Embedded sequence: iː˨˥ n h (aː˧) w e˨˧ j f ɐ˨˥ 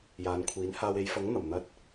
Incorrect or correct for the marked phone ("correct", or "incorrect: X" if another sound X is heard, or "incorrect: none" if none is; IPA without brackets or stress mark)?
correct